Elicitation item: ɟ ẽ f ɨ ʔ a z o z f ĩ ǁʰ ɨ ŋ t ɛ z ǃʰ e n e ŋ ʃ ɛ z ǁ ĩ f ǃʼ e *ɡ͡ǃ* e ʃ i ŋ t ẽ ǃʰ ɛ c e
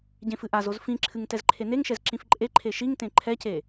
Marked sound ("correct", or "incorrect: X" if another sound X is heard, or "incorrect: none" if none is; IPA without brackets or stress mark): incorrect: ǃʰ